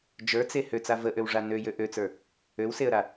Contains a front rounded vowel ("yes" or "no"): yes